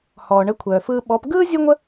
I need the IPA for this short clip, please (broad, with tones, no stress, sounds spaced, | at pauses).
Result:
h ɔː˩ ɳ ə˩˥ kʷʰ œː˩ f ɯː˧ ɓ ɔ˩˥ p ɡ ɯː˥ zʲ ɯ˥ ŋʷ ə˥